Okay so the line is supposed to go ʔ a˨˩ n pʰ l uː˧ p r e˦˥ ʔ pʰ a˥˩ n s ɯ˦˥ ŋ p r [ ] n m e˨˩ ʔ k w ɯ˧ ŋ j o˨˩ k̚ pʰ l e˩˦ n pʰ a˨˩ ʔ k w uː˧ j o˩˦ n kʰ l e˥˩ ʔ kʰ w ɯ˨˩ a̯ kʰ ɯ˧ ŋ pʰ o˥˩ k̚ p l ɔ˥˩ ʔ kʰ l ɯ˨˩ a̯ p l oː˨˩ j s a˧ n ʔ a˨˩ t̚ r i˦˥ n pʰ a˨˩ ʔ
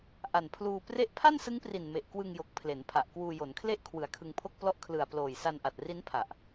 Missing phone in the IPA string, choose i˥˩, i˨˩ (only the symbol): i˨˩